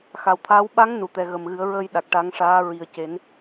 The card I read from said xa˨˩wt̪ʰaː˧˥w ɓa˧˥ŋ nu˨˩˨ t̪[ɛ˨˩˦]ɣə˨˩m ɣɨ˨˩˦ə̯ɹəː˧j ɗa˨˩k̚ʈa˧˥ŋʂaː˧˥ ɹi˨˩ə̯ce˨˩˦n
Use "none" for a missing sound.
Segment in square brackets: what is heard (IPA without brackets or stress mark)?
ɛ˨˩